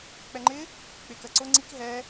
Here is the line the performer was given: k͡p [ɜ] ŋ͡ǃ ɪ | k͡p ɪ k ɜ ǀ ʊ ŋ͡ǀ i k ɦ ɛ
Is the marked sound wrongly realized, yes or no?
yes